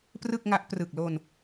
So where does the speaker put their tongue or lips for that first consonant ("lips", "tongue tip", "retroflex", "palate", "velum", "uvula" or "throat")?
lips